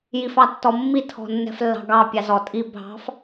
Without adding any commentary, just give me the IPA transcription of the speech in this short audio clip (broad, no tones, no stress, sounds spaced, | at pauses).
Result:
j i f ɑ tː ɔ mː i tʰ ɔ̤ nː ɛ̤ f lː ɑ̤ ɡ ɑ pʲ ɑ z ɔ tʼ i bʱ ɑ̤ f